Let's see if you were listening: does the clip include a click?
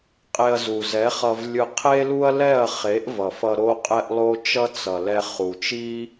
no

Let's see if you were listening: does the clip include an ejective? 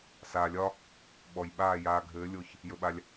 no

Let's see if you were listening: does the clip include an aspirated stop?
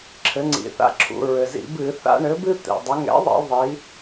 yes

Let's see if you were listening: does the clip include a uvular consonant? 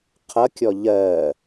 yes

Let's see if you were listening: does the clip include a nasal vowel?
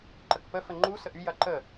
no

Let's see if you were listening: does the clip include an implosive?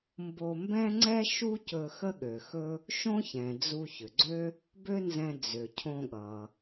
yes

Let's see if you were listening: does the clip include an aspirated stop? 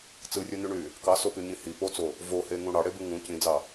no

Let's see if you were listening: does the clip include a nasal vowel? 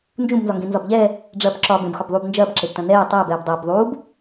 yes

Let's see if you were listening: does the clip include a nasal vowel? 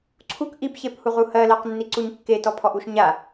no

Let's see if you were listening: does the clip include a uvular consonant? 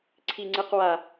yes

